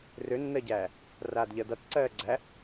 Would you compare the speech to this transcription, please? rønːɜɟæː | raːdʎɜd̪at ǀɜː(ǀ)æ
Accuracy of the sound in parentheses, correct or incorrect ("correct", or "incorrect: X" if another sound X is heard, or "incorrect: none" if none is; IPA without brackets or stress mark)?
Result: incorrect: ɡ͡ǀ